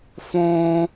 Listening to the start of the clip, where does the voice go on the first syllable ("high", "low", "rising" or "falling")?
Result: high